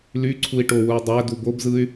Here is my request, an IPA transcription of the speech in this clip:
l y ǀʰ u i̯ ʈ o w u i̯ dˤ æ d u b o b z ɯ y̯

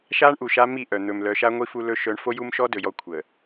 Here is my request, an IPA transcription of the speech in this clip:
ʃ a˦ ɳ ʔ u˨ ʃ a˦ m i˦˨ ʔ œ˨ n̪ ɵ˨ m l œ˨˦ ʃ a˦ ŋʷ i˦ f u˦ l ɵ˦ ʃ œ˦ ɳ f o˦ j u˦ m ʃ ɔ˦ d ɵ˨ j ɔ˦ kʷʰ ə˨

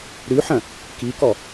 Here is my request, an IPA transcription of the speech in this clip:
ɾ ʉ ħ ɐ̃ | k i k ɔ

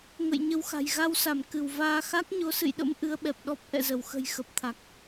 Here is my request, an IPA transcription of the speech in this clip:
ŋ ə̰˧˨ j ɲ ə˧ w x a̤˨˩ j ɣ a˧ w s a˧˩ m k ɨ˧˩ w v aː˧ x a˦˥ k̚ ɲ o˨˦ s ɨ̰˧˨ j ɗ ə̰˧˥ m ʔ ɨ˨˦ ə̯ ɓ ɛ˨˩ p̚ ɗ ɔ˦˥ p̚ ʔ ɛ̰˧˨ z ə˧˩ w x ə̤˨˩ j x ə˨˩ p̚ t̪ʰ a˨˩ k̚

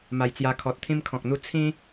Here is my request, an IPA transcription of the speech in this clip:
m a˧ j t͡s j a˧ kʰ ɔ˨ t̚ t̪ʰ ĩ˧ m kʰ ɔ̃˨ k̚ n̪ u˧ t͡sʰ ĩ˦

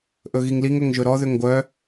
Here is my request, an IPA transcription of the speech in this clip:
ʔ ɵ ɣ i ŋ l i ŋ ɵ ŋ ʒ ɵ ɾ ɔ ð ʏ ŋ ɡʷ œ

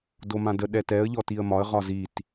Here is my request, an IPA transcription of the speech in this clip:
d o m ã d ə ɗ ɛ t ɛ ə̯ ʎ ɔ t i ə̯ m ɒ ə̯ ʁ ɒ z i t

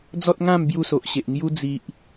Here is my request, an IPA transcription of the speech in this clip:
d͡z ɔ˦ t̚ ŋ ã˥˧ m b j u˥˧ s o˨ ʔ ɕ e˨ ʔ ŋ j u˧ d͡z i˨ ʔ

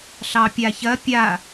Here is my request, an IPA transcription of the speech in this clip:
ɬ ɑ pʲ a ç ɐ pʲ a

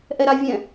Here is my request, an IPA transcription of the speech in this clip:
ʔ ɛ ɾ a vʲ ɛ̃

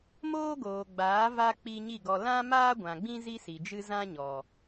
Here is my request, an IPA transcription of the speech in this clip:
m oː˦ ɡ oː˨ ɡ͡b aː˨˦ v a˧ k͡p i˧ ɲ i˦˨ ɡ ɔ˧ l ã˦ m aː˦ ɡʷ ã˨ ɡ͡b ĩ˦ z i˦ s i˨ d͡ʒ ɨ˦ z ã˦ ɲ ɔ˨

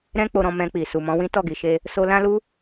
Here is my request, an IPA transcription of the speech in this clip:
ɾ ɛ̃˦ k͡p o˧ ɾ ɔ̃˧ m ɛ̃˧ k͡p i˨ s u˨ m ɔ̃˨˦ w ĩ˦ t ɔ˦˨ ɡ i˨ ʃ e˧ | s o˦ l ã˦ l u˦

